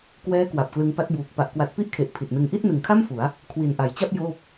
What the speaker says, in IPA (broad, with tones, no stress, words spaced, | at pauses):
kwɛː˦˥ kwa˨˩p̚klɯ˧ŋpa˦˥t̚buː˨˩k̚ pa˨˩ʔkwa˨˩t̚ pi˥˩ʔkʰe˨˩ʔ pʰi˨˩t̚nɯ˧ŋ ʔi˥˩t̚nɯ˩˦ŋkʰa˥˩m fu˩˦a̯ | kʰwi˨˩nʔa˩˦jt͡ɕa˥˩p̚ joː˥˩p̚